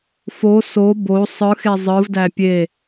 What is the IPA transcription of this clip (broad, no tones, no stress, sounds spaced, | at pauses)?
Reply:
f o s o b o sˤ ɯ x e zˤ ɯ v d æ pʲ e